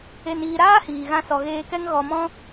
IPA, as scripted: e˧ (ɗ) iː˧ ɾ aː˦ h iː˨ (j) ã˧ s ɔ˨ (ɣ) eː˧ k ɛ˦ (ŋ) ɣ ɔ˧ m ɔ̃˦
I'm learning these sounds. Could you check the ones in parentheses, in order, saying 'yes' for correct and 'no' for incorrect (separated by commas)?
no, no, yes, yes